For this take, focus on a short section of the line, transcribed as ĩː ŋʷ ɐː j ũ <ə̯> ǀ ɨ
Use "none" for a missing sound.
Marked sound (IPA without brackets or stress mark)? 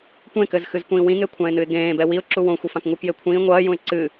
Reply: ɪ̯